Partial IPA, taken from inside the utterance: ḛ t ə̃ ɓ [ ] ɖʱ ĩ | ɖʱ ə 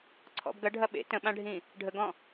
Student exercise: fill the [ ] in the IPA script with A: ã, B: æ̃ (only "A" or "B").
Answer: A